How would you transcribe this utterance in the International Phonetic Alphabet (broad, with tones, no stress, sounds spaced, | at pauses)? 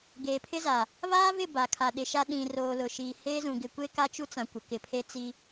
ɡ eː˨ pʰ ɪ˦ z a˨ | β aː˦ v ɪ˦˨ b a˨ kʰ a˨ ɗ ɪ˨ ʃ a˦ ɗ ĩ˨ r oː˨ l ʊ˨ ʃ iː˨ h eː˦ z ũ˨ ɡ ɪ˨ kʷ e˦ k a˦ t͡ʃ u˦ t͡s ã˨ kʷ ɪ˨ k ɪ˨ pʰ e˦ t͡s i˦